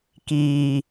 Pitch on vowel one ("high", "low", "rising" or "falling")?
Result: low